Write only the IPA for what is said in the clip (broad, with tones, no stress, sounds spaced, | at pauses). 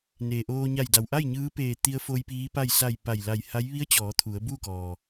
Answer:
n eː˩ ʔ oː˧ ɲ a˧˩ j d a˩ w ʔ a˥˨ j ɲ ɯː˧˥ p eː˧˩ t̪ i˧ ə̯ f o˧ j p iː˧˥ p a˥˨ j s a˧˩ j p a˧˩ j l a˧˩ j h a˧˥ j ʋ i˧˥ ə̯ t͡ɕ ɔː˩˧ t̪ʰ u˩˧ ə̯ b uː˥˨ k ɔː˩